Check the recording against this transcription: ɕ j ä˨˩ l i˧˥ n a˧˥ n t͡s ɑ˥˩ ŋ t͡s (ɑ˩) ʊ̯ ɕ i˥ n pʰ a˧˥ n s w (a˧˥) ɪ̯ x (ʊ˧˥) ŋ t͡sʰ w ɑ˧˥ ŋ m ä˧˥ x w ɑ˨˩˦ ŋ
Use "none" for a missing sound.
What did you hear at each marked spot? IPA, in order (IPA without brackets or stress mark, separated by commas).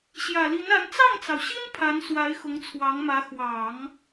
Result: ɑ˩, a˧˥, ʊ˧˥